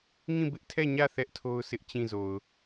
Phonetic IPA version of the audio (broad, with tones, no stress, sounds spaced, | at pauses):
ŋ ĩ˦˨ b ɪ˦ ʔ tʰ ɛ˦˨ ɲ ä˦˨ θ ɛ˦ ʔ tʰ o˦ ʊ̯ s ɪ˦ ʔ t͡ɕ ĩ˦˨ z o˨ ʊ̯